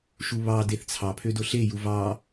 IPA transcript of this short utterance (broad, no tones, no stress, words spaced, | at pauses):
ʃuβɑ deθt͡sʰɑ pʰødoɬe juvɑ